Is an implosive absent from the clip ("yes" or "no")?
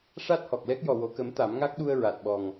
no